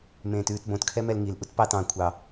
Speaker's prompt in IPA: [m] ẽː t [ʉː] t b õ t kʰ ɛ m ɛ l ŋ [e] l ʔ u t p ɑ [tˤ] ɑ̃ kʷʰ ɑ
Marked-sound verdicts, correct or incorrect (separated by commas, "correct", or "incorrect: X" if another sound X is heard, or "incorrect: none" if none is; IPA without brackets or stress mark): correct, correct, incorrect: i, incorrect: t